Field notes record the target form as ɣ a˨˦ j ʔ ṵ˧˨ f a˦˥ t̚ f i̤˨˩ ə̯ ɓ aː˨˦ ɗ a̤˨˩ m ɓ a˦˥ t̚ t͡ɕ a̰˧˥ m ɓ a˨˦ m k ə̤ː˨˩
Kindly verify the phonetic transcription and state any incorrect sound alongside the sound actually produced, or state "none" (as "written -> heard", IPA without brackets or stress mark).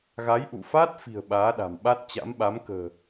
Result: none